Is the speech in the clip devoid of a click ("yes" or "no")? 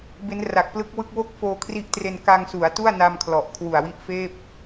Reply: yes